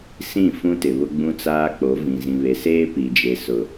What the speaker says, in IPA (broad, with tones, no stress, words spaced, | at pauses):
sĩ˦˨fũ˦ tɪ˨βʊ˦ ɡ͡bũ˦t͡saː˦k͡po˨˦vĩ˨ zĩ˨βe˨seː˦ pi˨d͡ʒe˨ sʊ˨